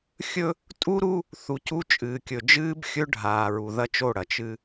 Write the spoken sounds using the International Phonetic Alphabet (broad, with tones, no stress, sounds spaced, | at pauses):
xʲ ɵ˦ | tʼ u˦ ɾ u˦ | θ u˨ c u˦ t͡ʃʼ ɨː˨ kʲ ɵ˨ d͡ʒ ɨː˦ b xʲ ɵ˦ ɖʱ aː˨ ɹ u˨ ð ɐ˦ t͡ʃ o˦˨ ɽ ɐ˨ t͡ʃ ɨ˦